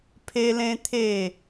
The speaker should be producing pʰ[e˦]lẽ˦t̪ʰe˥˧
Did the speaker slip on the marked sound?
no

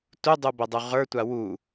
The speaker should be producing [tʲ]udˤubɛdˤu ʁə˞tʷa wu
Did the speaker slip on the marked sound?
yes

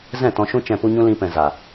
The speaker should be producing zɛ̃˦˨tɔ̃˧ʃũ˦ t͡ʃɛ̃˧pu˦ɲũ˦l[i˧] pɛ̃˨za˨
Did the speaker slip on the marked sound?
yes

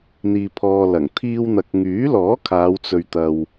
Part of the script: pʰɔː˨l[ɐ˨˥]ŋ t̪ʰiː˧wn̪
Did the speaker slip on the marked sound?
yes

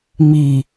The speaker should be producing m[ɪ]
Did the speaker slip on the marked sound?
yes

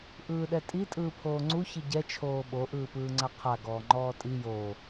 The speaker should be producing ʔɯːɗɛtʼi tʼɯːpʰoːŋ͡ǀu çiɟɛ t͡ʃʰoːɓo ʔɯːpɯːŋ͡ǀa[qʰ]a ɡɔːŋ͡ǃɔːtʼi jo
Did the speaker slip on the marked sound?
no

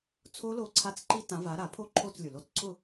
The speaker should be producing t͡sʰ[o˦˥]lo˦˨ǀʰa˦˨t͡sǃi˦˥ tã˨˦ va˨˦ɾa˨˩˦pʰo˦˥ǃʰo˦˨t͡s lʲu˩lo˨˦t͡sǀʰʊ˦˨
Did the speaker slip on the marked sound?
no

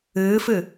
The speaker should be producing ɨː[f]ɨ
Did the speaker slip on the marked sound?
no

